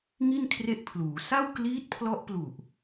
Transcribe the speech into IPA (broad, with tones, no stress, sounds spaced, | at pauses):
ŋ i˥˩ n kʰ r e˦˥ ʔ pʰ l uː˩˦ s a˥˩ w k l iː˦˥ t̚ pʰ l ɔ˦˥ ʔ p l u˨˩ ʔ